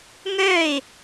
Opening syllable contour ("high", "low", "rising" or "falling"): falling